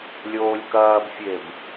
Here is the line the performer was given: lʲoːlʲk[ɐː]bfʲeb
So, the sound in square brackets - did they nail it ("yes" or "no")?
yes